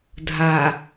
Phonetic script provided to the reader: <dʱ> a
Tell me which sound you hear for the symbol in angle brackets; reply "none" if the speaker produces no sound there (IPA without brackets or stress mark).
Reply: dʱ